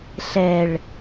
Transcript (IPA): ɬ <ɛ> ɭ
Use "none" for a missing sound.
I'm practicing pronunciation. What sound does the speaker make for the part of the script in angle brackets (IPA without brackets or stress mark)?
ɛ